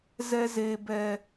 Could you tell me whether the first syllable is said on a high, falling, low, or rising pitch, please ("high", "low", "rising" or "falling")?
high